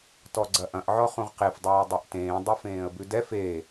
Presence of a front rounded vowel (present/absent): absent